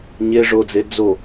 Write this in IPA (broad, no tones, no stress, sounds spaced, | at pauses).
ɲ e ʐ o d͡z e d͡z o